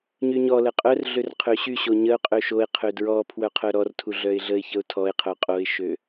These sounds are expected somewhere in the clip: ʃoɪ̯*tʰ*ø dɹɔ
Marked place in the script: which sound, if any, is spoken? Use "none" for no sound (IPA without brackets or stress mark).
qʰ